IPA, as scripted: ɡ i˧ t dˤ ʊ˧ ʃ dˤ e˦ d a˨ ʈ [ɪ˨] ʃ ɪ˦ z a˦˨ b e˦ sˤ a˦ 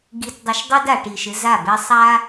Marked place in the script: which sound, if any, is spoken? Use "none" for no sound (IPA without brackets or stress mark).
i˨